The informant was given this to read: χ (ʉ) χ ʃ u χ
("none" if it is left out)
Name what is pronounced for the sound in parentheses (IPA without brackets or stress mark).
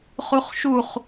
u